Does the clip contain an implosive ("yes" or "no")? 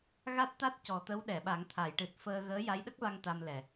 yes